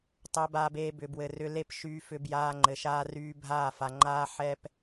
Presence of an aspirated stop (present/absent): absent